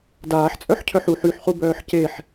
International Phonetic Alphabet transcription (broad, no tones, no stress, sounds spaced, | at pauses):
d aː ħ t͡sʼ œ ħ cʰ œ ħ u ħ y ħ χ u b œː ħ c e ħ